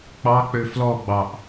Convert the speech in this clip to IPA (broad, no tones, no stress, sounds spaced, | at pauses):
k͡p ɑ k͡p ø f l ɔ ɡ͡b ɑ ʔ